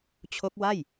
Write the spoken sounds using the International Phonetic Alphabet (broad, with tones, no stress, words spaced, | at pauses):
t͡ɕʰo˦˥k̚wa˥˩j